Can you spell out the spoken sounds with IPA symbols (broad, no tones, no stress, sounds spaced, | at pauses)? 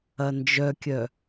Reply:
ɐ n d͡ʒ œ kʲ œ